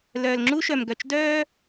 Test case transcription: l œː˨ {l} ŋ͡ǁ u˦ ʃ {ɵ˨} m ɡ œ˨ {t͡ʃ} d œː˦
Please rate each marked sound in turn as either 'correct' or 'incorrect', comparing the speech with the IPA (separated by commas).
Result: correct, incorrect, correct